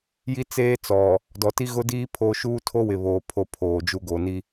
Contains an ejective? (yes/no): no